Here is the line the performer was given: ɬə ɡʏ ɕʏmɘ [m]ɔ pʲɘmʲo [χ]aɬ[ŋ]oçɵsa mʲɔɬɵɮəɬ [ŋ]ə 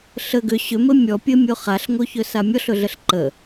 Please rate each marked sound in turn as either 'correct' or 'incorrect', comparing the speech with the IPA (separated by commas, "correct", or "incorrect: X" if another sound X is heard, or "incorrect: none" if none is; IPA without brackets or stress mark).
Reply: incorrect: mʲ, correct, correct, incorrect: ǃ